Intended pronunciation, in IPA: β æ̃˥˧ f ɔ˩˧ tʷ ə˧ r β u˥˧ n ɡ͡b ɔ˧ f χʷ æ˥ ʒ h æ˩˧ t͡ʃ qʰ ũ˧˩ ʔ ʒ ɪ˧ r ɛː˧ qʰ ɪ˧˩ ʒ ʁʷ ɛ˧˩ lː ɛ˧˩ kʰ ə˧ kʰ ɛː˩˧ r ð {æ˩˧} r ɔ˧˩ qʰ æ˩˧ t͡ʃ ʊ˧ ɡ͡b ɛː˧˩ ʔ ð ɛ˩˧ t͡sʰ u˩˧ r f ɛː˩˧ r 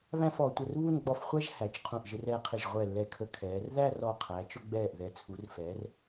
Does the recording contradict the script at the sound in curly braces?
yes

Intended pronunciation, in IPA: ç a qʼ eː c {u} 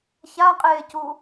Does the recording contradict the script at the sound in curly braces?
no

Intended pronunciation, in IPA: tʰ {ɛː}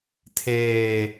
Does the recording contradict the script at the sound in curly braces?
yes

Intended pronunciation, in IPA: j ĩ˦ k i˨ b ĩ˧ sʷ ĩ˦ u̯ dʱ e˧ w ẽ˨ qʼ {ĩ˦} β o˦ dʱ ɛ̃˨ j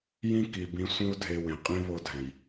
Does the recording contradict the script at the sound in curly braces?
no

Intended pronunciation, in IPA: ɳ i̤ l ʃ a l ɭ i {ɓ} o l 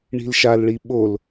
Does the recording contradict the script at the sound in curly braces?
no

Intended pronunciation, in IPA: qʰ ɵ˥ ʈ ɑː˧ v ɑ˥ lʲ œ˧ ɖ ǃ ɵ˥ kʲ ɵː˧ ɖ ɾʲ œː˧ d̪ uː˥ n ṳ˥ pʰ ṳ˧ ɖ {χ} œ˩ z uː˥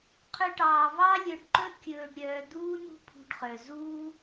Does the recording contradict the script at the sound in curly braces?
no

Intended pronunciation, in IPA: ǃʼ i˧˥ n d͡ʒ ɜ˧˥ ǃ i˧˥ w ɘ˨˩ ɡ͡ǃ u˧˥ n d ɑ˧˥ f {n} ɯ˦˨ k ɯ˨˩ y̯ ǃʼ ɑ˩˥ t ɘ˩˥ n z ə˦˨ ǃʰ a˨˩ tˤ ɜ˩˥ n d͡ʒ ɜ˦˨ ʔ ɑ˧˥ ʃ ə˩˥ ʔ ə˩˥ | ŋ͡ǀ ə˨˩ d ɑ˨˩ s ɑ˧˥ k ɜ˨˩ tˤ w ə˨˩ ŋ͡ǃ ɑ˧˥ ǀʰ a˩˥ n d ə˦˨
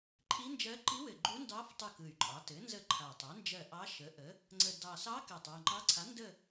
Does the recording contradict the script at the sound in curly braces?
yes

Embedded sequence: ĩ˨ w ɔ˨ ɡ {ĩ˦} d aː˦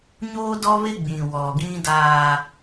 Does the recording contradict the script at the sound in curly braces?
no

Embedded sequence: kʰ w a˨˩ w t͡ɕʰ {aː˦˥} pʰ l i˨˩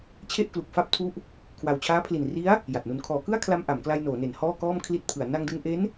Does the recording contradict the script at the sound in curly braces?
no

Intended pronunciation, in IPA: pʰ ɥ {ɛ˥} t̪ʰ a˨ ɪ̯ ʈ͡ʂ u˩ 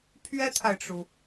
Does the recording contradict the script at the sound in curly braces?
no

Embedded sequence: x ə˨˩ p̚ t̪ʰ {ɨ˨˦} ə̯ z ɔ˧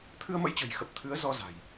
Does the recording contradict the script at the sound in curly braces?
no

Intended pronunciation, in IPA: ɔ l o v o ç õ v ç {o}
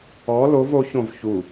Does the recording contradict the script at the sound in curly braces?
yes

